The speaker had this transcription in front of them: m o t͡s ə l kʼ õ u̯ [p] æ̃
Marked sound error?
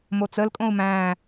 yes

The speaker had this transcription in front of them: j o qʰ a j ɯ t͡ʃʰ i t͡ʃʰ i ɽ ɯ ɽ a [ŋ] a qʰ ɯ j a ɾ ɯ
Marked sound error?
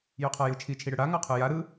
no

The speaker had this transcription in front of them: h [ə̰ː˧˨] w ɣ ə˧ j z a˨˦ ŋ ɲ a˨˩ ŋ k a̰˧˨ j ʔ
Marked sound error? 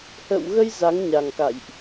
no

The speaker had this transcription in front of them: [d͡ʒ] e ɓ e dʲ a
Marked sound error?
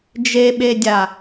no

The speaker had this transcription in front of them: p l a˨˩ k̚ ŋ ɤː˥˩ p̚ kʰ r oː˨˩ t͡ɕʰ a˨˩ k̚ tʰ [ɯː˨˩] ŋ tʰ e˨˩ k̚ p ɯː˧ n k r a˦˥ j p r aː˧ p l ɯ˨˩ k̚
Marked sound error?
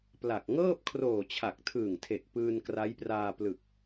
no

